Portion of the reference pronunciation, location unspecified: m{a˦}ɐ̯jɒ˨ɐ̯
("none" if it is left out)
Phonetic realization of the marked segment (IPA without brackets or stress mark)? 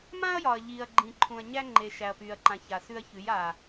ã˦